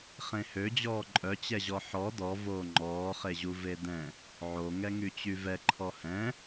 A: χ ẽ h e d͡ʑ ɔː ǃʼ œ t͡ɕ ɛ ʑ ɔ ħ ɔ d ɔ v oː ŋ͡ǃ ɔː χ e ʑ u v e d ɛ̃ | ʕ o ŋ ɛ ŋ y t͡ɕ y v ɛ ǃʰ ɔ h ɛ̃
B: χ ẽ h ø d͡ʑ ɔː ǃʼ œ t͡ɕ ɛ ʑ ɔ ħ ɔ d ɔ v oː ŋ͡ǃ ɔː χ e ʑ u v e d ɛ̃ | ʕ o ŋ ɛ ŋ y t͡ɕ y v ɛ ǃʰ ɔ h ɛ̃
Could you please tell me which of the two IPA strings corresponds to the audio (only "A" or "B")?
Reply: B